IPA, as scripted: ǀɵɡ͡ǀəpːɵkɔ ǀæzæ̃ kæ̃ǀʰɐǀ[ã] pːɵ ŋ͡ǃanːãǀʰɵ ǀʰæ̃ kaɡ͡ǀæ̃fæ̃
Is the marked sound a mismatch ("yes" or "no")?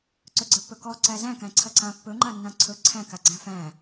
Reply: no